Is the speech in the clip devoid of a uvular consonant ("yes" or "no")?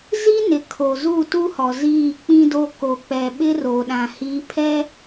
yes